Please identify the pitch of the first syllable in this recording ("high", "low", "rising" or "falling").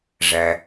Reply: low